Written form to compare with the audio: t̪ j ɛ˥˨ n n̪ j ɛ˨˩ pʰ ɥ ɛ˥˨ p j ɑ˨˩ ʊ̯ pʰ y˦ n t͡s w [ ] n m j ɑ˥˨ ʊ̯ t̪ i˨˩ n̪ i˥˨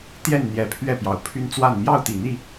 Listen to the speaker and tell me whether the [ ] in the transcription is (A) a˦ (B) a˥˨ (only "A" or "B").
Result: B